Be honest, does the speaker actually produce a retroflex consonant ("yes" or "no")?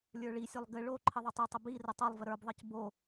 yes